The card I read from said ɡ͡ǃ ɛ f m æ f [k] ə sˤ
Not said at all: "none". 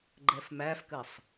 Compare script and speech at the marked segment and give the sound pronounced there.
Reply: k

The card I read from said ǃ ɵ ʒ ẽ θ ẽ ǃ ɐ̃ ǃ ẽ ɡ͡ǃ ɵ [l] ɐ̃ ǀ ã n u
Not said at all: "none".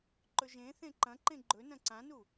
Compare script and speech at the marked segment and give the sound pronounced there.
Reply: n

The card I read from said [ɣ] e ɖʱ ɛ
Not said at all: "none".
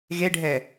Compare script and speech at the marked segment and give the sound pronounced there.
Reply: ɣ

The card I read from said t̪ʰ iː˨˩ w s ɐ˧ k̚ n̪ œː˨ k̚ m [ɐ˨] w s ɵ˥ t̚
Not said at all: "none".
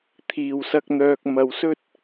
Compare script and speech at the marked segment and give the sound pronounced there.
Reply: ɐ˨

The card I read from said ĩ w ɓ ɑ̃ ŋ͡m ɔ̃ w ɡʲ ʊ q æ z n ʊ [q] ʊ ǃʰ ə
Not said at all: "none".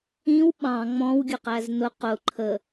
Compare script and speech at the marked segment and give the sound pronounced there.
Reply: q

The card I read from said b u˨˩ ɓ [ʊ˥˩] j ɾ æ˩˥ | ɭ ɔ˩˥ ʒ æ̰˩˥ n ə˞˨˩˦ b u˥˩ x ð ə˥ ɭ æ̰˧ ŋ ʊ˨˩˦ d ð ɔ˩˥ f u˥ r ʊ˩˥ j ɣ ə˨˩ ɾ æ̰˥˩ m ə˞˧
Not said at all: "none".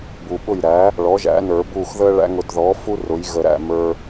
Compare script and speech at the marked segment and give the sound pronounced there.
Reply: ʊ˥˩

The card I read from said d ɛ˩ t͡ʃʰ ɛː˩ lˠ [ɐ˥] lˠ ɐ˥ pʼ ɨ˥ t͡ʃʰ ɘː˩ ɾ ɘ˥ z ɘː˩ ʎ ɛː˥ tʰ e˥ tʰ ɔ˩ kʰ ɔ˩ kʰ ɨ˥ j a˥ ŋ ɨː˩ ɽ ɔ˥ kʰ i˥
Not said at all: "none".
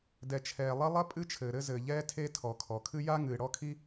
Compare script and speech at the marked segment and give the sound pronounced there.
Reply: ɐ˥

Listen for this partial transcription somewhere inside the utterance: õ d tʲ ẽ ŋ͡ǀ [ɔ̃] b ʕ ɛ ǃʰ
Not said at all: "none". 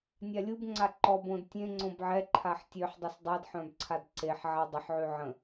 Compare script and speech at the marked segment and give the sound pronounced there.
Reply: õ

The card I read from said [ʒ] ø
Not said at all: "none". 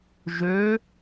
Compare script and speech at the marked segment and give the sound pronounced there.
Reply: ʒ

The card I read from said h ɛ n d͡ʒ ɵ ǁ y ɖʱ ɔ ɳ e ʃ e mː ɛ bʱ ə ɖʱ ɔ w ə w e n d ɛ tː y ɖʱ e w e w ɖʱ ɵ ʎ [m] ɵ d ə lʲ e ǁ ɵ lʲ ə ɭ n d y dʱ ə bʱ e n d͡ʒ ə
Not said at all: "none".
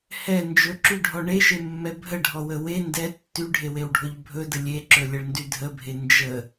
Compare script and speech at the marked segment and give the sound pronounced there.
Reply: bʱ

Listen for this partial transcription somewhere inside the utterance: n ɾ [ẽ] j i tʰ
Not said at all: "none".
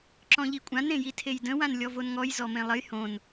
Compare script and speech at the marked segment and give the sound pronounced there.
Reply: ẽ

